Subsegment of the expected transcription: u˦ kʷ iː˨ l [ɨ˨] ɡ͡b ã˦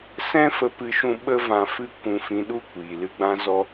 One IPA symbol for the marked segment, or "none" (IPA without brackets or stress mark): ɨ˧